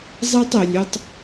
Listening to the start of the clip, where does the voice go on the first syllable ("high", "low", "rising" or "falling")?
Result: high